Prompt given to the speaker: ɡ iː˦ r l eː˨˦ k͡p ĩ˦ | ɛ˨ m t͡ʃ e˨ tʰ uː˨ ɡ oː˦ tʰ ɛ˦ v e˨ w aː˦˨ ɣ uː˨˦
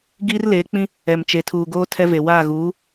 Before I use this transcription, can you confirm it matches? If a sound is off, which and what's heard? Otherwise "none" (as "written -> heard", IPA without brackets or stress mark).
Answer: none